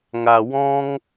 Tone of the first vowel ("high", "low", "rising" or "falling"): low